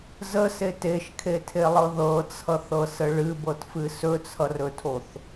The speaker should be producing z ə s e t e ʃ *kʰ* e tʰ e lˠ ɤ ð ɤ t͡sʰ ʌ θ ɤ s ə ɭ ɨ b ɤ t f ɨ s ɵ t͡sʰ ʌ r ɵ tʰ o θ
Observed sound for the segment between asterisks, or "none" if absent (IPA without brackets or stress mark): kʰ